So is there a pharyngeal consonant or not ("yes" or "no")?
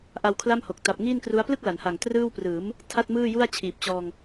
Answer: no